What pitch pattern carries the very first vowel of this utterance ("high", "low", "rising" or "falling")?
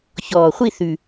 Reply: low